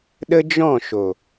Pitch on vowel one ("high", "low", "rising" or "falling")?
high